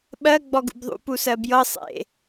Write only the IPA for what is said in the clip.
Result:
ɓ ɜ ɡ͡b ɔ ɡ ṵ b ðˤ ṵ p u s ɜ b j ɤ sˤ ḛ

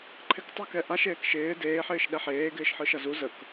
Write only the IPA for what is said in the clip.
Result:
ǃʰ ɪ k tˤ ə k ɛ ʔ a ʃ eː k ʃ ɪː d eː ħ ɪː ʃ ɗ ɛ ħ eː ɡ ɪː ʃ ħ ɯ ʃ ʌ z u z ə k

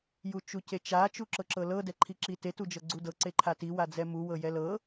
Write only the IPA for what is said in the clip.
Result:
j u t͡ʃ u c e t͡ʃ a t͡ʃ u ǁ ɤ ǁ ɤ l ɤ d ɛ ǃʰ i ǁ i t e t u d͡ʒ ɤ ɡ͡ǀ u d ɤ ǀ e ǃʰ a t i w a d͡z ɛ m u w ɤ j ɛ l ɤ

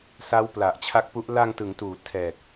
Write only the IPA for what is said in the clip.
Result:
s a˦˥ w p l a˨˩ ʔ t͡ɕʰ a˦˥ k̚ p u˦˥ ʔ l a˧ ŋ t ɯ˩˦ ŋ t uː˩˦ tʰ ɛː˨˩ k̚

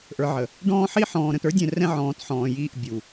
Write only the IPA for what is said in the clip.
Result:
ʔ ə˞˨ ʕ ə˨ | ɖ ɔ̃ː˦ ħ i˦ ħ ɔ̃ː˨ ɾ ə̃˨ t ə˞˦ dʲ ɛ̃˨ r ɛ̃˦ ʕ ɔ̃ː˨˦ t ħ ɔ̃ː˨ j iː˦˨ ʔ bʲ u˨

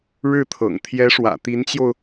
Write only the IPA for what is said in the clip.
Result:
ɻ ɻ̩˥˩ t̪ʰ ɤ̰˨˩ ŋ t̪ʰ j ɛ˧˥ ʂ w ä̰˨˩ t̪ i˧˥ n t͡ɕ j o˧ ʊ̯

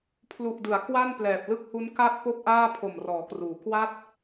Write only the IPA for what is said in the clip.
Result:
pʰ l u˨˩ ʔ d ɯ˩˦ a̯ k w a˥˩ n p l ɛː˨˩ p̚ l ɯ˥˩ k̚ h u˦˥ n k a˥˩ t̚ p o˥˩ k̚ ʔ aː˥˩ pʰ o˨˩ m r ɔː˩˦ k r uː˩˦ k w a˥˩ t̚

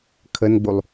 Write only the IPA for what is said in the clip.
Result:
kʰ ə n ɡ͡b u lˠ

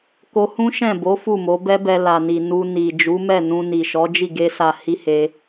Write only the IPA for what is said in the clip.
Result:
k o˧ h ũ˦ ʃ ɛ̃˦˨ b o˨˦ f u˦˨ m o˨˦ b ɛ˦ b ɛ˧ l a˨ n i˨ n u˧ n i˨ d͡ʒ u˨˦ m ɛ˦˨ n ũ˧ n i˨ ʃ ɔ˨˦ d͡ʒ i˦˨ ɡ e˧ s a˨ h i˧ h e˧

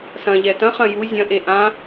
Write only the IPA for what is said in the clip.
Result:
s ɐ̃ ʎ ɛ t ɐ̃ χ ɐ̃ j u zʲ ɐ̃ ʔ e ʔ ã

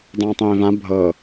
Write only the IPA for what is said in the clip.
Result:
dˤ ãː tˤ ẽː v ã bʱ ɤ

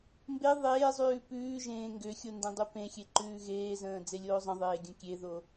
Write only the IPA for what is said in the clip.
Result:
m b e ðˤ eː zˤ ʉː p ʉː ʒ ẽː ŋ ɡ ʏ xʲ o n d ẽ dˤ u p ẽ xʲ e ǃ ʉː ɣ eː z ə̃ː d͡z e lʲ oː zˤ ə̃ ðˤ eː ɡʲ ə̃ kʲ e ð o

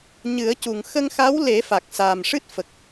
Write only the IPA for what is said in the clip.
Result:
ɲ ɨ˨˩˦ ə̯ c u˨˩ ŋ x ə˧ ŋ x a˧˥ w l e˨˩˦ f a˨˩ k̚ s aː˨˩ m ʂ ɨ˦˥ t̚ f ə˨˩ k̚

